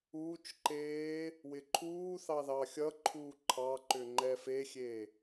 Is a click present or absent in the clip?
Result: present